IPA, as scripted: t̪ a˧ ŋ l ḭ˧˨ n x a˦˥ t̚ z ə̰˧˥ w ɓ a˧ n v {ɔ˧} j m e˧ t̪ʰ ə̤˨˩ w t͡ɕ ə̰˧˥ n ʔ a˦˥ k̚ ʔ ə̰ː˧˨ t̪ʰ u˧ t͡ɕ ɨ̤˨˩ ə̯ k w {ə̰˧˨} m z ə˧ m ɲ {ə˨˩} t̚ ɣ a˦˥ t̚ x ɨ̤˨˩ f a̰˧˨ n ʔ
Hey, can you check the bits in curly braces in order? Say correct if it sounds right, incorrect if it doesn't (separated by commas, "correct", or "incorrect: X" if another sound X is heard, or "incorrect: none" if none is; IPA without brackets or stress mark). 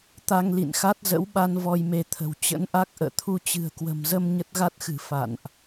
correct, incorrect: ə̤˨˩, incorrect: ə˦˥